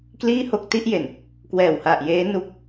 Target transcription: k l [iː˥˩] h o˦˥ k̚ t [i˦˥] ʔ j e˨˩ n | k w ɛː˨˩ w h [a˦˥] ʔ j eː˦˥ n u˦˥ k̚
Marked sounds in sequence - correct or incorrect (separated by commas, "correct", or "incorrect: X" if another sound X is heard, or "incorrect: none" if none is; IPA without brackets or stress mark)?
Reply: correct, correct, incorrect: a˨˩